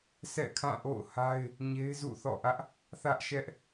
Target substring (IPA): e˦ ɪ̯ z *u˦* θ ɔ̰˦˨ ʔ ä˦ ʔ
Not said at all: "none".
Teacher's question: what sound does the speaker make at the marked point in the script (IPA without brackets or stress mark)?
ṵ˦˨